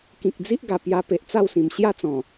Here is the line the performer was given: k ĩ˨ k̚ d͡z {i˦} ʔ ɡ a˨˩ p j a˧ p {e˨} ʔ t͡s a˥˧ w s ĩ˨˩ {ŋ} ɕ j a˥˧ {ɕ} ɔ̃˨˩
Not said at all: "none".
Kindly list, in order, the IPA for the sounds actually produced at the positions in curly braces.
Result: i˦, e˨, m, t͡s

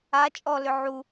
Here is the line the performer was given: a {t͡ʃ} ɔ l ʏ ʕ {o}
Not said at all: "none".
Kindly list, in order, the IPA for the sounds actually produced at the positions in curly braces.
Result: t͡ʃʼ, u

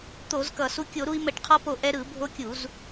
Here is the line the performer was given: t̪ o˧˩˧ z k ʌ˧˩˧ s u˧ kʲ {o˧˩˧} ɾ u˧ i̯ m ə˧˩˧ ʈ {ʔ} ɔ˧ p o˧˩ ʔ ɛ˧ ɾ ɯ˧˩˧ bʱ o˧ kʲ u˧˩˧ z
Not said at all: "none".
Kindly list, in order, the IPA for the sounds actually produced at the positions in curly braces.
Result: o˧˩˧, qʰ

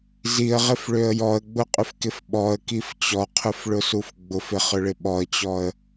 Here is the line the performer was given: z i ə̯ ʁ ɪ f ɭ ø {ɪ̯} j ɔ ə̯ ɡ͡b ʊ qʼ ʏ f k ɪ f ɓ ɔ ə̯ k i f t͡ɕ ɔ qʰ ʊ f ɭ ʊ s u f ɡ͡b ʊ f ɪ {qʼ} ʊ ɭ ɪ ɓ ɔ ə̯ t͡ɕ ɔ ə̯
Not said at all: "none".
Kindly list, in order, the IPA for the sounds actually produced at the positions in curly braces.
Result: ə̯, χ

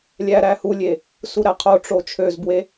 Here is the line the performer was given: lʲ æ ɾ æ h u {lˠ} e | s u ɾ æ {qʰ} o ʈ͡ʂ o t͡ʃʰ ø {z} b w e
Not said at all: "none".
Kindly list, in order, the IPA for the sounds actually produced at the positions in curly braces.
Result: lʲ, qʰ, z

